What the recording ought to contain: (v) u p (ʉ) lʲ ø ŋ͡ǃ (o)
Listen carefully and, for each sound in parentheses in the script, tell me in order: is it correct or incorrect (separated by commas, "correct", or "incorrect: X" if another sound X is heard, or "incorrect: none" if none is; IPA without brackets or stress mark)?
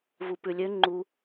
correct, correct, incorrect: u